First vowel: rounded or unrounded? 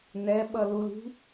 unrounded